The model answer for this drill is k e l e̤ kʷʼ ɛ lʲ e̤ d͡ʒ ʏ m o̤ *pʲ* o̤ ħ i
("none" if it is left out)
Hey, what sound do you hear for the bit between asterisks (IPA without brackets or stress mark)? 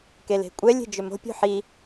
pʲ